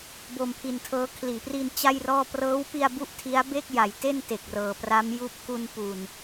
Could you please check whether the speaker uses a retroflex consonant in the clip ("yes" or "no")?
no